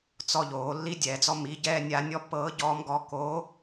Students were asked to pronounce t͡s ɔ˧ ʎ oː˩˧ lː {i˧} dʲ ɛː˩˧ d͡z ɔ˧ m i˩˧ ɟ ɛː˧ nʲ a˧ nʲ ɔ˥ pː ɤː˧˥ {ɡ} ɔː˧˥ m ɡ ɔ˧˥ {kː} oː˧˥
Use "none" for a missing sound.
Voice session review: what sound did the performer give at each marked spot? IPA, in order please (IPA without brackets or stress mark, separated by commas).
i˧˥, ɟ, k